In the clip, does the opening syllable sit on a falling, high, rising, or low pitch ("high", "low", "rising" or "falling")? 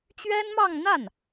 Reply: high